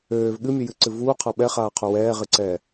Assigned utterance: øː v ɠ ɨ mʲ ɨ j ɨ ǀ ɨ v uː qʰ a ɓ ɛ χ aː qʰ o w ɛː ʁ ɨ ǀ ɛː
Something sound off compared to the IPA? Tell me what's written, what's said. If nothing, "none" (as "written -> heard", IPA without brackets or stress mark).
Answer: none